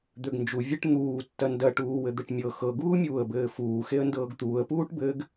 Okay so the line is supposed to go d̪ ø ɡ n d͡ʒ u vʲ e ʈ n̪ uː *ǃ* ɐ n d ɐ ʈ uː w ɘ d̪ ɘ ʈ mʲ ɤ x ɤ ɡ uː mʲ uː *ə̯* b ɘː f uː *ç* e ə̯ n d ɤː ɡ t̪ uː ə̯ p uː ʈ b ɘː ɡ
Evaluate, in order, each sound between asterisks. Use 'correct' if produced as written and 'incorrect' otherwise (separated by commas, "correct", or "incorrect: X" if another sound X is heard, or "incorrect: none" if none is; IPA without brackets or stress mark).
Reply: incorrect: tː, correct, incorrect: x